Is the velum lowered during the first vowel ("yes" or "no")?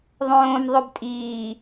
yes